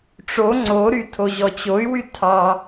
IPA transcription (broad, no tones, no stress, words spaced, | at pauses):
ʈ͡ʂo ŋ͡ǀoɾytʰoʑɔ t͡ɕoy̯wy tʰɑ